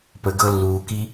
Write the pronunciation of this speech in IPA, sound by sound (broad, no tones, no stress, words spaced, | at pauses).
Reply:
pəɡɤ lːuːki